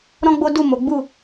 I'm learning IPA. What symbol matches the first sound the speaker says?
ɾ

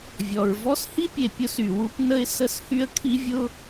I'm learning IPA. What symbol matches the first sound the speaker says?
vʲ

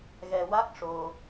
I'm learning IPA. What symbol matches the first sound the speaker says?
ɣ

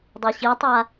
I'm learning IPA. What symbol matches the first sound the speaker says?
dˤ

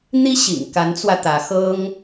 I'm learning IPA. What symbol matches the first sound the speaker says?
n̪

